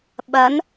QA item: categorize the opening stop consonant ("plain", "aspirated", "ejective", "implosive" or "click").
implosive